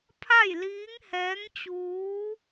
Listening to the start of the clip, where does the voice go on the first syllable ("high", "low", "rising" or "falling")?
falling